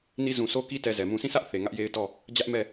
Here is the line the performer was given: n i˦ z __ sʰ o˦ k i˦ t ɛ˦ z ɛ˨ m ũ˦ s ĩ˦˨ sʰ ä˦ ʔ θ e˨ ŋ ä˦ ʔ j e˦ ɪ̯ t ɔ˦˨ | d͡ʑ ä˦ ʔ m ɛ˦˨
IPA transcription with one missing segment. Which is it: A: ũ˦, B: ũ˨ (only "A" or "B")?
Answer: B